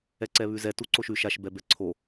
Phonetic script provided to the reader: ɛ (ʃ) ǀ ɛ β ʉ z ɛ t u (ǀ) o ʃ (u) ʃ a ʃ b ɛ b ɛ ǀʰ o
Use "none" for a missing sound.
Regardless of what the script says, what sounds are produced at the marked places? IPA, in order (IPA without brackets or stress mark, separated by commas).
none, ǀ, ʉ